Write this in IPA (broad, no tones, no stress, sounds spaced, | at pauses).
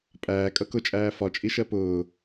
pʼ æː kʼ ʌ k ʊ t͡ʃʼ æː f ɒ t͡ʃʼ i ʃ ɜ p ʊː